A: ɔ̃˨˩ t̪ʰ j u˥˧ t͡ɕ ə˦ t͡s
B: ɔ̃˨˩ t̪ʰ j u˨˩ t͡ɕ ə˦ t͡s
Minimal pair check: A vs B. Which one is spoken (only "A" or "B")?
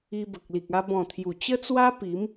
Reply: B